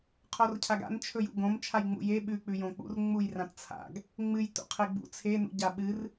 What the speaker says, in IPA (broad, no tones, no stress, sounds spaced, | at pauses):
qʰ o r cʰ a ɡ a̰ n t͡ʃʰ ɵ j ṵ ɡ õ m t͡ʃʰ a j ŋ͡m ṵ j e ɓ ʉ k͡p ʉ j õ k͡p ṵ r ŋ͡m u j r ã t t͡sʰ a̰ ɡ | ŋ͡m ɨ j t ṵ qʰ e ɡ͡b ṵ t͡sʰ e n ṵ ɟ a ɓ ɨ r